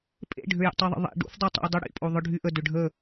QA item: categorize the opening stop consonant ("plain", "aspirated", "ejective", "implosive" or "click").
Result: ejective